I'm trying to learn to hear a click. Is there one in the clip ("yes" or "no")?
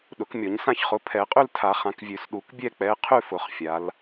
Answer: no